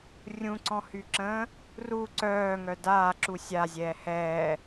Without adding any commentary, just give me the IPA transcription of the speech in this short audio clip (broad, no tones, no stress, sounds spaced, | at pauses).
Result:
rʲ ũ ǀ ɔ̃ h y ǁ ə̃ː | r u ǀ œː ŋ œ d aː ǁ u sʲ a zʲ ɛː h ɛː